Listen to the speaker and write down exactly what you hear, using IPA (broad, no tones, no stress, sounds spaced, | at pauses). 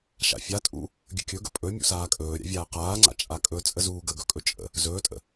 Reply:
ʃ a̰ fʲ a tʼ ṵ | ɡʲ ə̰ kʲ ɵ ɡ ə̰ pʼ ɵ mʲ ṵ s aː kʼ ɵː ɾʲ a̰ vʲ aː q aː ŋ͡ǀ a̰ t͡ʃʼ a kʼ ɵ t͡sʼ ə z uː ɡ ə ɡ ɵ kʼ ɵ t͡ʃʼ ə̰ | z ɵː tʼ ə̰